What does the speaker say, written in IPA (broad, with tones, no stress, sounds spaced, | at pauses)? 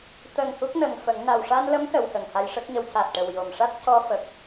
t̪ ə˨˩ ŋ h u˦˥ k̚ n ə˨˩ ŋ f ə˨˩˦ ŋ n a˨˩ w ʂ a˧ n l ə˧˥ m s ə˨˩˨ w h ə˨˩ ŋ h a˧ j ʂ ə˦˥ k̚ ɲ ə˧ w c a˨˩ t̚ ʈ ə˨˩ w j o˨˩ m ʂ a˦˥ t̚ c ɔ˧ f ə˨˩ k̚